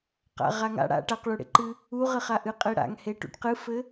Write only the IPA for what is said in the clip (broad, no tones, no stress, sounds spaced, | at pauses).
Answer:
q a̰ ʁ a ŋ a̰ ɽ a̰ ʈ a q ɭ u ɽ ḛ ǃ ɨ | u ʁ ɘ χ a ʔ ɨ qʼ e ɽ a̰ ŋ h e ʈ ṵ ʈ q ɨ f ɘ